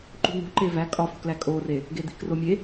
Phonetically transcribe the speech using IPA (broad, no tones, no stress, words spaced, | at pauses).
ǃṳn̪ṳ ǃevæ kʼɒfṳklæ kʼore | ɡed̪i̤kromʲe